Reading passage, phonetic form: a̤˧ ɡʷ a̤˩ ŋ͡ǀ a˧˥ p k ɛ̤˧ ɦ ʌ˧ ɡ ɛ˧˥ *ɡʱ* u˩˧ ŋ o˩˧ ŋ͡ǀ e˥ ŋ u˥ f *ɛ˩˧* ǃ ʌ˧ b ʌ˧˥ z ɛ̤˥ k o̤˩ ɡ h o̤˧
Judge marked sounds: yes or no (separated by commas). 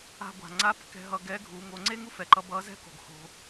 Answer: yes, no